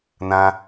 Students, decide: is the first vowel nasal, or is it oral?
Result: nasal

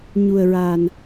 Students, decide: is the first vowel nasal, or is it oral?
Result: oral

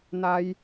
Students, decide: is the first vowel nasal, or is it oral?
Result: oral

